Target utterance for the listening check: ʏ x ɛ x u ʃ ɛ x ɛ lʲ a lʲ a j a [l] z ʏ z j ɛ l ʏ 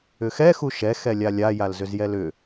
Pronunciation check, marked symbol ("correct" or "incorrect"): correct